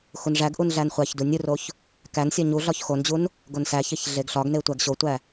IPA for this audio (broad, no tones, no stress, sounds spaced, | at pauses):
x u n ʐ æ ɡ ʔ u n ɮ æ n χʷ æ ç d u nʲ u r o ç | k æ n sʲ ɒ ɲ u ɮ ɒ ç x o n d͡ʑ u n | ɡ o n s æ ç e ç ɮ e ɡ ɬ ɒ ɡ n e tʷ æ ɡ ɕ o tʷ æ